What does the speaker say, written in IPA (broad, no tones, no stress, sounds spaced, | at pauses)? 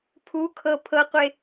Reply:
pʰ u kʰ ɤ pʰ ɤ qʷ e